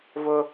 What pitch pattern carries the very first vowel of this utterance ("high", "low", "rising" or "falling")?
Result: high